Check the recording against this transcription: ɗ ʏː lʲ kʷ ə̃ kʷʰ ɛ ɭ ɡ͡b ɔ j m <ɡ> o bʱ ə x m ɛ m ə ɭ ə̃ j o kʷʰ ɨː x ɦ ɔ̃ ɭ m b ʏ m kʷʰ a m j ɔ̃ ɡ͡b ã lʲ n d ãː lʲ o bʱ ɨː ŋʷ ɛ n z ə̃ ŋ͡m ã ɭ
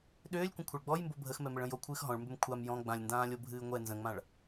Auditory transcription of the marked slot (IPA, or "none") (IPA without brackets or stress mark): b